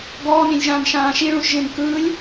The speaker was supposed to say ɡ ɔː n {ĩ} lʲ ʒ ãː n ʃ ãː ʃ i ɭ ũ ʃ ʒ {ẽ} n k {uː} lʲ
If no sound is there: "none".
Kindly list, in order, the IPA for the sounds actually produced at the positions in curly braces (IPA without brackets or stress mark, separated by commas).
ĩ, ẽ, ɯː